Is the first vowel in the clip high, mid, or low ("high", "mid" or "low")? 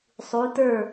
high